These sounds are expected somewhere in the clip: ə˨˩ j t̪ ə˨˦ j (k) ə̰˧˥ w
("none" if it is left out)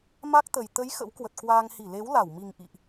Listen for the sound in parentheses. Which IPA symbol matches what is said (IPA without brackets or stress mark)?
x